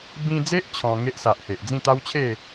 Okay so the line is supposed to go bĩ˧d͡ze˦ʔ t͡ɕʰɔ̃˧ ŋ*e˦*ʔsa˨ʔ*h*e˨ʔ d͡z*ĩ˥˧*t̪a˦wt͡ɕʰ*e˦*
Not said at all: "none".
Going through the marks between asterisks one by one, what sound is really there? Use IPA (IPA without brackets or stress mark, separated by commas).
e˦, h, ĩ˥˧, e˥˧